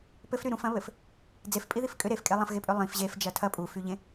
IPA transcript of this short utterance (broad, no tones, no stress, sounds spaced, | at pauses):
p ɘ f ɾ y ɾ ũ f ɐ̃ β ɘ f | d͡z e f pʼ i ð i f kʼ ʏ ɾ e f kʼ e lˠ ɐ̃ f ɣ e pʼ ʏ lˠ ĩ f ʑ e f d͡ʒ ɐ tʰ ɐ pʼ u f y ʎ ẽ